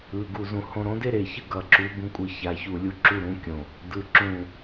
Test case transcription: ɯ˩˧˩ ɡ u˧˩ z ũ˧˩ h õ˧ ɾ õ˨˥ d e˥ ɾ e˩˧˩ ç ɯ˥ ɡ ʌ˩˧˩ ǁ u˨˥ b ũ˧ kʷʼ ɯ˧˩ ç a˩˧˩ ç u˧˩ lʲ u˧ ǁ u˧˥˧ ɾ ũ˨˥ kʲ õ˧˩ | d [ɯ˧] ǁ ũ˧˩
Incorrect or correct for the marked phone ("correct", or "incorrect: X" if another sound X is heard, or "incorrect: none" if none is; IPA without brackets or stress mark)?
incorrect: ɯ˩˧˩